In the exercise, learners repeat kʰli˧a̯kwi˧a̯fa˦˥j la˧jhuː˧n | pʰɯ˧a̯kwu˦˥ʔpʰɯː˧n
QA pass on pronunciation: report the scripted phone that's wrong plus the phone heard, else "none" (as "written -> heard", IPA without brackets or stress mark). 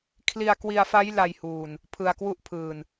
none